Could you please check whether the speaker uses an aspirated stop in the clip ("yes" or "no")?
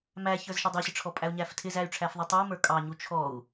yes